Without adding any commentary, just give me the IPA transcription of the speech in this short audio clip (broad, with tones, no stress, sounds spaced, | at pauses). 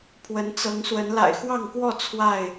pʰ w ə˨˦ n t͡s ɤ˨˦ ŋ s w ə˨˦ n l a̰˨˩ ɪ̯ x w ɑ˥˨ ŋ k w ɔ˥˨ t͡sʰ w a˥˨ ɪ̯